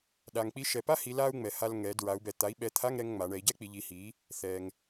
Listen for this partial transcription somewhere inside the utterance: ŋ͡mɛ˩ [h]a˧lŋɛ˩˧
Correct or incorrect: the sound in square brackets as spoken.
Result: correct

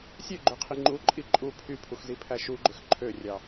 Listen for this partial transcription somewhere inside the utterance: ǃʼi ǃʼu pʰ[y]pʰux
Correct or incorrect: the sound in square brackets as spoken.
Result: correct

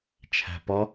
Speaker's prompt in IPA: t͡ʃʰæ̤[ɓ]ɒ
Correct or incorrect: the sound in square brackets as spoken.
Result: incorrect: p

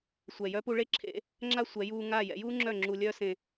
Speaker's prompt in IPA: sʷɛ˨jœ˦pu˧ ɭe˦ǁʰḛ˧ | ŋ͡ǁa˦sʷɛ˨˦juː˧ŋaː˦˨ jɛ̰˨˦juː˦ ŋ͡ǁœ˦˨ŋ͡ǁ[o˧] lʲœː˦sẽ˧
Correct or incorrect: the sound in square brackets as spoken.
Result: incorrect: u˧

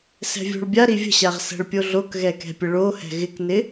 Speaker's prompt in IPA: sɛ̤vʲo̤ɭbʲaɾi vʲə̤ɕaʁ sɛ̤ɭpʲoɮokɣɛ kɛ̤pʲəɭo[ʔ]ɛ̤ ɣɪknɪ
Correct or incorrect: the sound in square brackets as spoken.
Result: incorrect: h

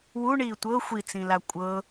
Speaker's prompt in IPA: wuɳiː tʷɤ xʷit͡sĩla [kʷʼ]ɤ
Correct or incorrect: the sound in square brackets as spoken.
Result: correct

